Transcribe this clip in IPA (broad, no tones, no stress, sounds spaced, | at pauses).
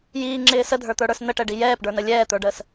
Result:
j iː ŋ͡ǁ ɪː s ə dʱ ə˞ t̪ ə˞ ɽ ə˞ s n ə ʈ ɛ ɖ i j ɛː p ɖ ə˞ n ə lʲ ɛː t̪ ə˞ ɖ əː s